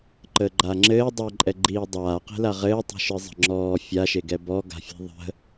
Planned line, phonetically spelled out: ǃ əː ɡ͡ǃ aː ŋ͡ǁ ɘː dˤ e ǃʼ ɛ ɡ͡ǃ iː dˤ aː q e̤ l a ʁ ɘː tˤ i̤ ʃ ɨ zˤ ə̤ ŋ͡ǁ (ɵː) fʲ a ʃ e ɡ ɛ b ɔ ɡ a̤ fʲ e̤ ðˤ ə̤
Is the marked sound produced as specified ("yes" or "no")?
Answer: no